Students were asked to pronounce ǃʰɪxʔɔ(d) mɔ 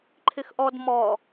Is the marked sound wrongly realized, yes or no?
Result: no